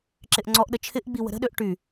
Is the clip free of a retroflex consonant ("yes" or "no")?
no